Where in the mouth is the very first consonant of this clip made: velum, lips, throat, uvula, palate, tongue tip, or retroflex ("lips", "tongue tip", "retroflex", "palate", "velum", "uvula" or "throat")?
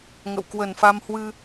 velum